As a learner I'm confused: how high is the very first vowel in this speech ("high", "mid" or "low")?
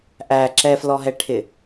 low